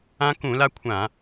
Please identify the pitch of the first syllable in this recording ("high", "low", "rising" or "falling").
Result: high